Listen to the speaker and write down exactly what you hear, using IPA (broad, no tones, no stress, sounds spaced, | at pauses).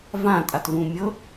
v ã tʼ a t v ũ mʲ ɤ